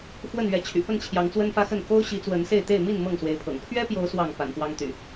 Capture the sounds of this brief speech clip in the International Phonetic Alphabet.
fwə˥˨nɥɛ˨˦ t͡ɕʰy̰˨˩pə˥˨n t͡ɕʰjɑ˨˦ŋt͡swə˦nfä˦xə˥˨n ko˦ʊ̯ɕi˨˦ t͡swə˨˦nse˥˨ɪ̯t̪e˥˨ɪ̯ mi˥˨n mɤ˥˨ŋswe˨˦ɪ̯pʰɤ̰˨˩ŋ pʰɥɛ˦pjo˨˦ʊ̯ swɑ˥˨ŋ pa̰˨˩npwɑ˦ŋt̪y̰˨˩

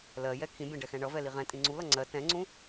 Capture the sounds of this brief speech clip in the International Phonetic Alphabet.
lɜjɛ kʰĩbʲɛ̃ɖɛxɛ̃ ɳʌvɛli ʁɛ̃tʼĩ ŋ͡ǀulʌ ŋ͡ǀɜ tɛ̃ŋ͡ǀũ

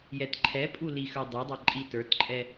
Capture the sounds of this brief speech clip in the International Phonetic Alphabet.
jɛtǃʰɛpʼu lixə˞dˤɛdˤa ǃʼitə˞tǃʼɛ

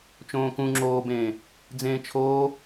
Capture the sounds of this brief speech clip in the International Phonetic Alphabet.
t͡ʃõːkũ ŋ͡ǁoːbẽː | d͡zẽːt͡ʃʰoː

